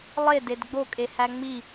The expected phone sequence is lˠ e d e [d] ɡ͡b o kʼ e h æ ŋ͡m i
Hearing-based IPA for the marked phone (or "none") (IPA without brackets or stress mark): d